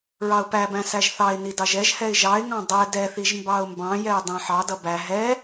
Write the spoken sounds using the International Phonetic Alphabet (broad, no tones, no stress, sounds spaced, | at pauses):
ɹ ɑ ʊ̯ p æ b æ̃ s æ ʒ θ ɑ ɪ̯ n i d ɑ ʒ ɛ ʒ h ɛ ɪ̯ ʒ ɑ ɪ̯ ŋ ɑ̃ dˤ ɛ d ɛ θ i ʒ m b ɑ ʊ̯ m b ɑ̃ j ɛ ɪ̯ dˤ æ̃ ħ ɑ d ʌ b æ ɦ ɛ